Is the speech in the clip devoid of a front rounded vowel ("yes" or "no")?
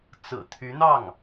no